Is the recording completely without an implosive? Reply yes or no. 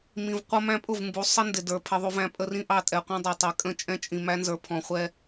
yes